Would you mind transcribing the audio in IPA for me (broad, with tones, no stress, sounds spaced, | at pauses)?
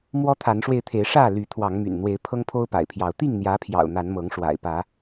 m w ɔ˦ t̪ʰ a˨˦ n ʂ w e˧ ɪ̯ t̪ʰ e˨˦ ɪ̯ ʂ ä˥˨ l y˨˦ t̪ʰ w ɑ˨˦ ŋ m y̰˨˩ n n̪ w e˨˦ ɪ̯ pʰ ɤ˦ ŋ pʰ o˦ ʊ̯ p a̰˨˩ ɪ̯ pʰ j ɑ˨˦ ʊ̯ t̪ i˥˨ ŋ n̪ j ä˨˦ pʰ j ɑ̰˨˩ ʊ̯ n̪ a˨˦ n m ɤ˨˦ ŋ ʂ w a̰˨˩ ɪ̯ p ä˨˦